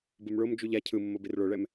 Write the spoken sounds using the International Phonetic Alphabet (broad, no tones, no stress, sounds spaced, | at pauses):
b ɯ m ɭ o m d͡ʒ u ʎ a cʰ ɯ mː o b i r ɭ o ɭ ɛ m